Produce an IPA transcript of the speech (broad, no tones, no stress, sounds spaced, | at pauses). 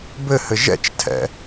b ɘ h ɘ ʒ ɛ̰ t͡ʃ tʰ ɛ̰